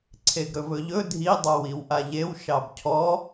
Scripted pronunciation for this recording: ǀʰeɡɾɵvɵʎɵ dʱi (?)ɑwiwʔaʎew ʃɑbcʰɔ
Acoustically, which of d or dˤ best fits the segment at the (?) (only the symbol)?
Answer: dˤ